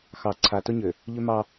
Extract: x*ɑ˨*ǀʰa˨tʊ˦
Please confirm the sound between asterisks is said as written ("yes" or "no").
yes